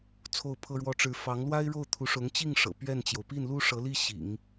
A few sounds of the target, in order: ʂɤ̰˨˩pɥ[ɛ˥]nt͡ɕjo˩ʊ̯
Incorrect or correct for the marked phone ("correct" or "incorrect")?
incorrect